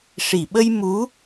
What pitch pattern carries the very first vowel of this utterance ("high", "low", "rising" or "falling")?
low